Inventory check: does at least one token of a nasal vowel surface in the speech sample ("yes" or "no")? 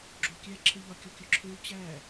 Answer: no